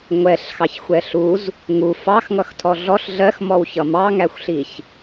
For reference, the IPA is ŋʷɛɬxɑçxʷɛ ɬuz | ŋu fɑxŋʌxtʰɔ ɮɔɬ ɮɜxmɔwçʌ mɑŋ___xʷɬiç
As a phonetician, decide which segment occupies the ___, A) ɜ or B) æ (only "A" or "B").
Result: B